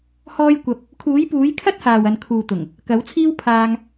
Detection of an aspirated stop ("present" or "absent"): present